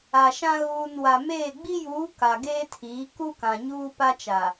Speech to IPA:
a˨ ʃ ã˦ ɣ uː˨ n w a˨ m eː˦˨ ɡ͡b i˦ j uː˨˦ k a˨ ɡ eː˦ tʰ iː˨˦ k u˦ k ã˨ ɲ uː˦ p a˦ t͡ʃ a˨

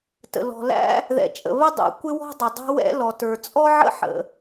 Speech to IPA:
t ə̰˩ l ɔ̤˩ l æ̰˥ | ð ɛ̰˩ t͡ʃʼ ə̰˩ β ə˥ dˤ ɛ̰˩ kʷ ɪ˥ w ɔ̤˥ dˤ ʊ˩ dˤ ɛ̤˥ w ɛ̰˥ l ɔ˩ t ə˞˩ t͡sʼ ɔ˥ ʕ ə̰˥ ħ ə̰˩

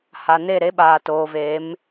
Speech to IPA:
h a˨ n e˦˨ ɾ e˦ ɓ aː˨ t oː˨ v eː˨˦ m

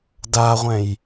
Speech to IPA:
d a ʁʷ ɛ̃ j

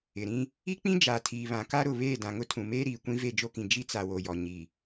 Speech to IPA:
ɪ˨ ɾ ĩ˦ | i˦ k͡p ĩ˦ d͡ʒ aː˨ tʰ iː˨ β ã˨ k a˦ ɾ ʊ˨ β eː˦˨ d ã˨ ŋ ʊ˦ tʰ ũ˨ m eː˦ ɾ iː˨ kʷ ĩ˦ v e˦˨ d͡ʒ o˦ k ĩ˨ d͡ʒ i˦ t͡s a˨ w o˨ j ɔ˨ ɲ i˨

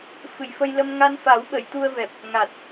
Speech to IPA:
f ɨ˨˩ j f ə˧ j l ə˧ m ŋ a˧ n f a˨˩˦ w ɓ ə˨˩˨ j t̪ u˧ ə̯ v ɛ˨˩ p̚ | ŋ a˨˩ t̚

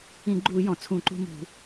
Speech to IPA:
ĩ˧˩˧ ɡ͡ǃ uː˧˩˧ j ɔ̃˩ t͡sʰ ũ˧˩˧ ǃ ṳ˦ m ṳ˧˩˧

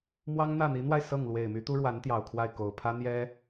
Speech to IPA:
m w ɑ˥ ŋ n̪ ä˥˩ n̪ i˧˥ n̪ w a˧ ɪ̯ s ɤ˥˩ ŋ l w e˨˩ ɪ̯ m y˧˥ t̪ u˥ ɻ w a˧˥ n t̪ j ɑ˨˩ ʊ̯ kʰ w a˥˩ ɪ̯ k o˨˩ ʊ̯ pʰ ä˥ n̪ j ɛ˥

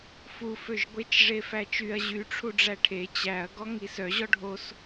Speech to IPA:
f u f ø ʒ ɡʷ e t͡ʃ ʐ e f æ t͡ʃ y ɐ̯ ʑ y ʈ͡ʂʰ u ɖ͡ʐ æ ʈʰ e t͡ɕ æ ɐ̯ ɡ ɔ ŋ i s œ ʑ ɔ ɖʱ o s

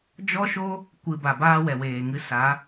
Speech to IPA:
d͡ʒ ɔ˦ ʃ o˦ | kʷ ɨ˨ b a˨ b aː˧ w ɛ˨ w eː˨ ŋ ɨ˧ s a˨˦

